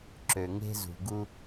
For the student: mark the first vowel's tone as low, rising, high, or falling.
low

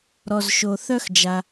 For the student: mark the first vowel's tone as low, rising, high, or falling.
low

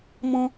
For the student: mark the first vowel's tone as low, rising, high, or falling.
high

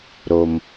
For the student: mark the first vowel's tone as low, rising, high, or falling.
low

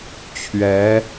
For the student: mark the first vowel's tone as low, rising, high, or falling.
rising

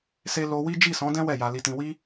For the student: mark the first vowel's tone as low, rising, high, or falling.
high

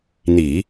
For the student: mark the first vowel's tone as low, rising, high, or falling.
low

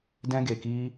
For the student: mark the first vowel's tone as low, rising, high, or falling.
high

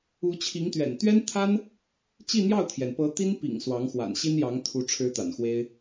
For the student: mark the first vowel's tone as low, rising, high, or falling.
rising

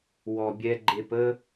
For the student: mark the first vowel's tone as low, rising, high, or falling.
low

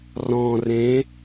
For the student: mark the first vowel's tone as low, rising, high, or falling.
low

